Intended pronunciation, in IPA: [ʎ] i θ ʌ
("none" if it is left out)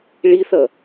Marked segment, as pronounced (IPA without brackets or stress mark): ɭ